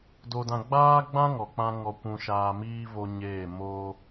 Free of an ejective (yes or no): yes